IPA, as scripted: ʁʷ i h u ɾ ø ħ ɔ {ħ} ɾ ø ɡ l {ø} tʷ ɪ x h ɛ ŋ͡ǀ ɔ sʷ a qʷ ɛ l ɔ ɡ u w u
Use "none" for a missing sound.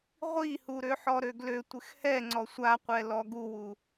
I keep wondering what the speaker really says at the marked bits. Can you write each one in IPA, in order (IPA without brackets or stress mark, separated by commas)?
none, ø